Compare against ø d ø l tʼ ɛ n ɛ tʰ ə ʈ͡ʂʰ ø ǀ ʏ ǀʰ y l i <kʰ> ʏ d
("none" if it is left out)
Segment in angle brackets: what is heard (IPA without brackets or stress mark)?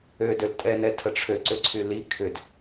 kʰ